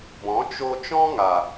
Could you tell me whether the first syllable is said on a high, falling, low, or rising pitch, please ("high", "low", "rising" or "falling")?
rising